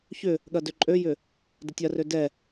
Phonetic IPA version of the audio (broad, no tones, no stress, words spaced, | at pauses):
çʏ | ɠɐdøǃʼøjʏ | dətʲɐrø dɛ